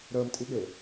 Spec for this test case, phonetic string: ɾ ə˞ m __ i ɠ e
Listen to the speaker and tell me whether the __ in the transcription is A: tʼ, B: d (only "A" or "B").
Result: A